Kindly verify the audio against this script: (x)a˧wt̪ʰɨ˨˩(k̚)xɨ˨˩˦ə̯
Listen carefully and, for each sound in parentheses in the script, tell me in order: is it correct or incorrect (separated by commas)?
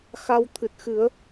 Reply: correct, incorrect